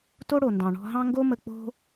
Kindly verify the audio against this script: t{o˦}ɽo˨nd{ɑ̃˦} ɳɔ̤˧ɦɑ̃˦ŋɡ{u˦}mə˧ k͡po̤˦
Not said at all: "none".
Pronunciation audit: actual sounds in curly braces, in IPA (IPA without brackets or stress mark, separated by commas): o˦, ɑ̃˨, o˦